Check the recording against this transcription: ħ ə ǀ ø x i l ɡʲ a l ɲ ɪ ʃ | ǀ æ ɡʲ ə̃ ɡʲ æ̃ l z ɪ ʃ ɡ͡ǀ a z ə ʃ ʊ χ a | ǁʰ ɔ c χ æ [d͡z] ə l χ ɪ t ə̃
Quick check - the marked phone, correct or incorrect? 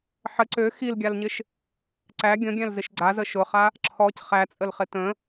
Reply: incorrect